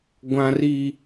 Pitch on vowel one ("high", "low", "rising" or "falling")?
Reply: high